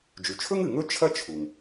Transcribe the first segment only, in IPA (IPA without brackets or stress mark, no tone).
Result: d͡ʒ